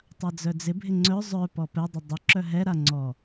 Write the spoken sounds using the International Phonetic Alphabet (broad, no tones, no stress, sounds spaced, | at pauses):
tˤ a d͡z œ d͡z ɪ bʱ ɪ ŋ͡ǀ œ zˤ œ p ɔ p ɛ dˤ ʊ dˤ ʊ ǁ œ ɦ ɛ ɾ a ŋ͡ǀ ɔ